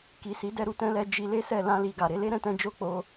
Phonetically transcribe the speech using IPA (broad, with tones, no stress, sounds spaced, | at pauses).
k i˨ s i˨˦ d ɛ˦˨ ɾ u˨ t ɛ̃˧ l ɛ˧ d͡ʒ i˧ l e˦ s ɛ˦˨ l ã˧ l i˨ ɡ a˨ ɾ e˨˦ l e˦ ɾ ɛ̃˦ t ɛ̃˦ d͡ʒ o˦ k͡p o˧